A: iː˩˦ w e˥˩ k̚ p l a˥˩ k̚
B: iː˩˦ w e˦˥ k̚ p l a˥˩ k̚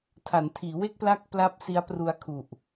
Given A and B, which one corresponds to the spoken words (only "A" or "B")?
A